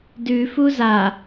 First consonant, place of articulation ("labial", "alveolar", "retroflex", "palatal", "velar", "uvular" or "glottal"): alveolar